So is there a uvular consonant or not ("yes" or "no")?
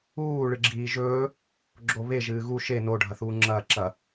no